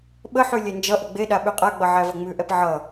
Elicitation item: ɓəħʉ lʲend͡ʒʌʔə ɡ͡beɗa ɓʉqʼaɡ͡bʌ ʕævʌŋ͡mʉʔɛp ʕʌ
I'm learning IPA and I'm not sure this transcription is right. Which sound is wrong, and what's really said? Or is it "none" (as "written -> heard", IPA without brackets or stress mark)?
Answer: none